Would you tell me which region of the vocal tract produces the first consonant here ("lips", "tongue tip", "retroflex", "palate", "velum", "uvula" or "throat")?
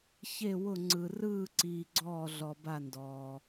palate